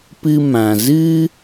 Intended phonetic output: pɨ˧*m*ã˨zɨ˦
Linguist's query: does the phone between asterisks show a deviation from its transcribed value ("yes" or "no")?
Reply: no